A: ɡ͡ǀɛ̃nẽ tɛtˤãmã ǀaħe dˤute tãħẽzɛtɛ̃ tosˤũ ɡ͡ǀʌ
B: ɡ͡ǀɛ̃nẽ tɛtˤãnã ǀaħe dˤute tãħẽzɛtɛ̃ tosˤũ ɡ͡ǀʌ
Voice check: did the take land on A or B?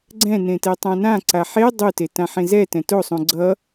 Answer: B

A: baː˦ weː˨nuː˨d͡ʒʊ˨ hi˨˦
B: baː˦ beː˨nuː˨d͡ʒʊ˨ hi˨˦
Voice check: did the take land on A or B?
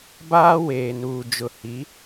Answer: A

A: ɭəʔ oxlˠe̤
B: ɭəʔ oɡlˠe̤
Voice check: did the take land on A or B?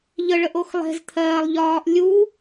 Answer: A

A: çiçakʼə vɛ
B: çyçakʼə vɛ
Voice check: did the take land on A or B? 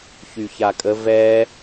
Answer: B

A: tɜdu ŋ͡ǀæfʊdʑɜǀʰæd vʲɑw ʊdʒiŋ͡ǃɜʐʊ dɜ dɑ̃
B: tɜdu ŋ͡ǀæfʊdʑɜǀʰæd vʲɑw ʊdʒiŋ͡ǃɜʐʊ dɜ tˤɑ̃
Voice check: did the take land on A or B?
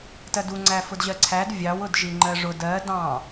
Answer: A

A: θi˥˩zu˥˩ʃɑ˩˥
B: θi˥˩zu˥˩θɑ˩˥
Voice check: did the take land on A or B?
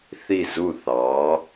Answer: B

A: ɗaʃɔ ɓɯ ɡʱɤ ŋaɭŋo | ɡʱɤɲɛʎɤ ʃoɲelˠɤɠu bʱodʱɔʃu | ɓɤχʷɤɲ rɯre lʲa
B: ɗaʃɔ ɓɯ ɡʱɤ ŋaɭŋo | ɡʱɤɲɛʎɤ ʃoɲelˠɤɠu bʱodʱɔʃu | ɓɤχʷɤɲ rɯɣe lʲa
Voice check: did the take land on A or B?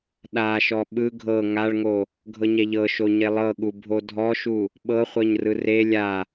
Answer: A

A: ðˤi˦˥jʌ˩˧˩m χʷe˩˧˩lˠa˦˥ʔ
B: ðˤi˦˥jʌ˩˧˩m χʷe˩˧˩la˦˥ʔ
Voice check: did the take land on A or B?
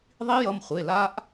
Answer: B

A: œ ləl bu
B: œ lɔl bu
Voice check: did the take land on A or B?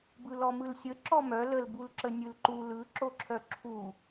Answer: A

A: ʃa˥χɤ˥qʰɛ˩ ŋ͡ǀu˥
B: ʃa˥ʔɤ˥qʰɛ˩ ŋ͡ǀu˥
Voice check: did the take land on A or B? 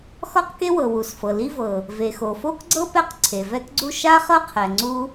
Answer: A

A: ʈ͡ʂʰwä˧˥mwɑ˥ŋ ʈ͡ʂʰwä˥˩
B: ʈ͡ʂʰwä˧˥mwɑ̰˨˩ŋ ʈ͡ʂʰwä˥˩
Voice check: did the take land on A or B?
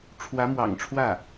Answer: B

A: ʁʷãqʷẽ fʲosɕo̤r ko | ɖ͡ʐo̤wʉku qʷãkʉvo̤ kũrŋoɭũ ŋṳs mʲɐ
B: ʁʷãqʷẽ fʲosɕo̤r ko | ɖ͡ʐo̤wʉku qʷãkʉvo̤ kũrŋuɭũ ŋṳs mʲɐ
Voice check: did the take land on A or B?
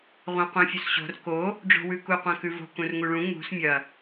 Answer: B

